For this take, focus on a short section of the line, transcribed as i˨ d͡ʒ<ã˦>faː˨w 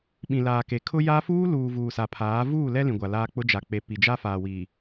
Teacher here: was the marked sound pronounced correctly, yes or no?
no